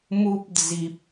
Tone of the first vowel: high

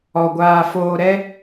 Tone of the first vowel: low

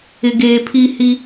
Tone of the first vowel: low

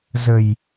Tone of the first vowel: low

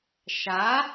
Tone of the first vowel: rising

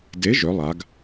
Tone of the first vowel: rising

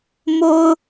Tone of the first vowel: high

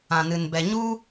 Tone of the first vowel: low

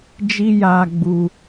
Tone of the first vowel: high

